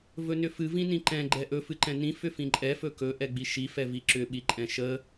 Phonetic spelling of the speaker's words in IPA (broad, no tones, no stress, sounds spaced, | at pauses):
v ɵ n ʏ f ɨ v ĩ n ĩ ǃ ɛ̃ ɡ͡ǃ ɛ ʔ ɵ f ɨ ǃ ɛ̃ n ĩ f ʏ f ĩ ǃʼ ɛ f ɵ k ɵ ʔ ɛ ɡ͡b i ʃ i f ɛ v i ǁ ʏ ɓ i ǃʼ ɛ̃ ʃ ə